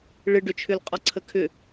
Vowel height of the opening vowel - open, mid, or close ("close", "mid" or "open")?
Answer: close